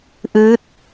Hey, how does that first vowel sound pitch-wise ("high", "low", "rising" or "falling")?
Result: rising